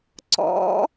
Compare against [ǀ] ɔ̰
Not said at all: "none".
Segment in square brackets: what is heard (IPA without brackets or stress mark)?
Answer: ǀ